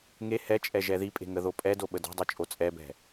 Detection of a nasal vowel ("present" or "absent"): absent